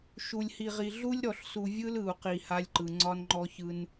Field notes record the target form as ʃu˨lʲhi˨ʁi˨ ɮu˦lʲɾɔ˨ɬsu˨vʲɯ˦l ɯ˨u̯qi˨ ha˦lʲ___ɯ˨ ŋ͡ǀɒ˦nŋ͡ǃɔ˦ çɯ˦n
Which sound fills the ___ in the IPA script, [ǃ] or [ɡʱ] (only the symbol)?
ǃ